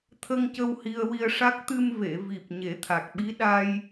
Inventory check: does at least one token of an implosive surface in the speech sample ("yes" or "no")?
yes